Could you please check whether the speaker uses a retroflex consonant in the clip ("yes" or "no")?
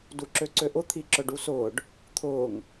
yes